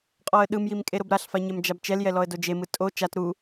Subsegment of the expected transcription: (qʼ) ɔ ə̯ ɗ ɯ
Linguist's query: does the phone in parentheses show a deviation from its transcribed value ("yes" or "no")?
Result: no